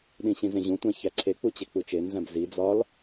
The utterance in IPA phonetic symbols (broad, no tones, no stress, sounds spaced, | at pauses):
ɗ ĩ ɕ ĩ z ẽ ʑ ũ tʷ æ̃ ç æ ǀʰ e k͡p u t͡ɕ e k͡p u t͡ʃ e n z æ̃ b z i d͡z ɒ l